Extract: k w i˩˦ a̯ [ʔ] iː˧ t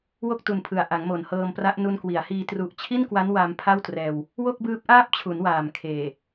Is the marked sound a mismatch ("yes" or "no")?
yes